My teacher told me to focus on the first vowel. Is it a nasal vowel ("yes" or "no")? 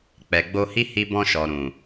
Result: no